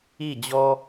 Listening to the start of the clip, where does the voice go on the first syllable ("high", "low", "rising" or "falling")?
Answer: falling